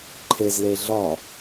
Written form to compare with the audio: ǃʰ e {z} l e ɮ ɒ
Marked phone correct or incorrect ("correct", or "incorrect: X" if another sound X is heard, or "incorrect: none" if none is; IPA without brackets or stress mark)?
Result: correct